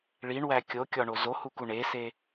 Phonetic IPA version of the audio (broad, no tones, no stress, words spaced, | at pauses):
ɭiɳwæ kʲokʲɒɳo zohuku ɳese